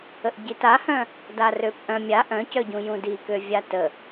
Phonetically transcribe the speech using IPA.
ə ʔ ɟ i t a h œ̃ | d a r ø p ʔ œ̃ mʲ a ʔ œ̃ c œ ɟ ũ j ũ d i k ø vʲ a t ə

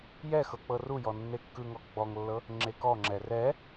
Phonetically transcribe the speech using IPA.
j ɛ x ɤ k͡p ɤ r u j ɔ nː e kː ɯ ŋ ɔ ɡ͡b ɔ ŋ lː ɤ | ŋ͡ǁ e k ɔ ŋ͡ǁ ɛ r ɛ

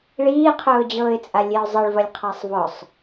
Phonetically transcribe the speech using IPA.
ɭ iː qʰ ʊː d͡ʑ ɤː ɪ̯ t͡sʼ a lʲ e ʊ̯ zˤ ɤ ɭ v ɐ lʲ qʰ a sˤ v ɔ sˤ

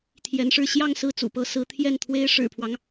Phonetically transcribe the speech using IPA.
t̪ʰ j ɛ˧˥ n ʂ ɻ̩˥˧ ɕ j ɑ˥˧ ŋ s ɹ̩˥˩ t͡s ṵ˨˩ p ɤ˧˥ s ɹ̩˧˥ t̪ʰ j ɛ˥˩ n t̪ʰ w e˥ ɪ̯ ʂ ɻ̩˨˩ pʰ w ɑ˦ ŋ

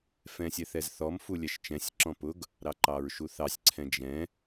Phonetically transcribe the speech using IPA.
f ɛ̃ sʲ ɛ θ ɛ z θ ɔ m f u lʲ ɛ ʃ t͡ʃ ɛ̃ sʲ ǁ ɔ̃ p ʊ ɡ | ɾ ɑ ǃ ɑ ɹ ʃ u θ ɑ sʲ ǀʰ ɛ̃ d͡ʒ ɛ̃

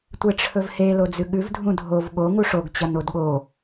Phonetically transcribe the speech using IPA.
tʷ e ʈ͡ʂʰ ɵ v h e l o d͡z ʉ ɠ ʉ v dʱ ũ dʱ o v ɠ o ŋ u ʂ o ɡ t͡ɕ ɐ n o d ɠ o

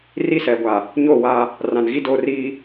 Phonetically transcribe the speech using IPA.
r i˦˨ s ɛ˨ ɡʷ a˨ | ɲ o˦˨ w a˦ | r ã˨ n ɣ i˦ d oː˦ r iː˦

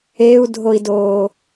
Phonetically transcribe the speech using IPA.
e u̯ dʱ o i̯ d oː

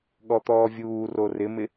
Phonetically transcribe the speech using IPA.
ɠ ɔ t̪ ɔː vʲ uː r o r ɪ m ɪ

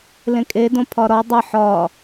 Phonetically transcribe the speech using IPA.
l ẽ kʼ e d õ pʰ ɒ ɾ ɒ dˤ ə ħ ɒ

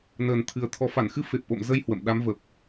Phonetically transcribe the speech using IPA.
n əː˨˩ n t̪ʰ ɨ˨˩ ə̯ t̪ʰ ɔ˨˩ f a˧˩ n x ɨ˧ f e˨˩ p̚ ʔ o̰˧˨ m z ə˧ j h w ə̰˧˨ m ɗ a˨˦ m v ə˨˩ p̚

